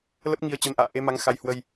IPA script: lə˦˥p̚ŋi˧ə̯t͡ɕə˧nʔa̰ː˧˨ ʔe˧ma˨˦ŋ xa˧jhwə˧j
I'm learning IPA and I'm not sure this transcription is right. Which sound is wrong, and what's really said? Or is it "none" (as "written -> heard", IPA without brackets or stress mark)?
none